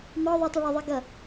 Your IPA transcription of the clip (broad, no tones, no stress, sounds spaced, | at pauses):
m ɒ ðˤ ʌ tˤ ʉ ɭ ə ðˤ i ɡ ʌ